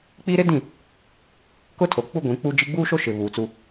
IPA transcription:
k͡p i˦ ɾ ɪ˦ d ĩ˦˨ | k ʊ˦ tʰ o˨ k͡p u˦ ɡʷ ĩ˨˦ k͡p u˦ d͡ʒ i˦ ɡ͡b uː˦ ʃ o˦ ʃ ɪ˨ β uː˨ t͡s u˦

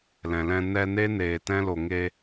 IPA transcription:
l ɛ̃˨ l ɛ̃˧ n ɛ˧ n e˦ n eː˨ t ɛ̃˦ l o˨ ŋ e˧

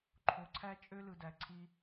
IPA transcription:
ǃʰ o˨ ǀʰ æ˦ t͡ʃʼ ø˦ l ɯ˨ d æ˨ ǀʰ i˧

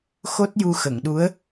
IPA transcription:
x o˦˥ t̚ j u˧ x ə˨˩˨ ŋ ɗ u˧˥ ə̯

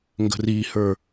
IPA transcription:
ŋ ɡ ə̤ r i h ə˞

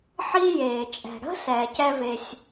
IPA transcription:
ħ i˥ j eː˩ t͡ʃʼ ɛ̤˩ ɽ ə̤˥ s ɛː˩ c ɛ˥ v e˩ sʲ

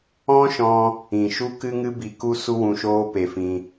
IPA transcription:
ɔ̃˦ ʃ ɔ̃˧ | ĩ˨ ʃ u˦ k ɨ˧ ŋ ɨ˧ b i˧ k u˦ s u˦ w ũ˧ ʃ oː˦ p e˧ f ĩ˧

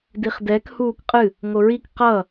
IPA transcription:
d i χ d ɛ k h uː k qʼ ɨ | ŋ o ɹ i k q ʌ

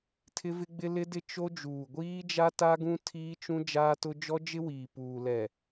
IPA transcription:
tʰ ɪ˦ v ɪ˦ ɡ͡b ɪ˦ l ɪ˦ d ɪ˦ t͡ʃ o˦ d͡ʒ uː˨ ɡʷ iː˦ d͡ʒ a˦ t a˦ ɡ ũ˦ tʰ iː˦ t͡ʃ ũ˦ d͡ʒ aː˦ t ʊ˦ d͡ʒ ɔ˦ d͡ʒ ɪ˦ w iː˨ p uː˨ l ɛ˨

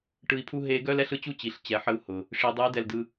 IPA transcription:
ʈ ɯ˧ i̯ pʰ u˥ ɦ e˧˥ ɡ œ˥ l ɛ˥ ɬ ɯ˧ t͡ɕ u˥ t͡ɕ i˩ ɬ t͡ɕ ɛ˩˧ ħ ə˧ u̯ h ʊ˩ | ʂ i˩˧ dˤ ɨ˧˥ i̯ d ɛ˧ l d ɯ˧

